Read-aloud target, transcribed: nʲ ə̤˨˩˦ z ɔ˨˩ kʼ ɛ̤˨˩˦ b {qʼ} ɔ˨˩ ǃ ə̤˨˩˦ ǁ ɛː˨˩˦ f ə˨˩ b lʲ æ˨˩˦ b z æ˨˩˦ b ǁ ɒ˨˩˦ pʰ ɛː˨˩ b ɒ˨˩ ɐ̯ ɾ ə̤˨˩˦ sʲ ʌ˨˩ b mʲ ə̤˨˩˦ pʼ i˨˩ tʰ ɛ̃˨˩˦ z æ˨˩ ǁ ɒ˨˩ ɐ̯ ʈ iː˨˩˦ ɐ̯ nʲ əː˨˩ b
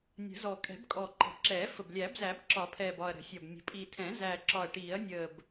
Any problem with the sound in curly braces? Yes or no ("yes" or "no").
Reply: yes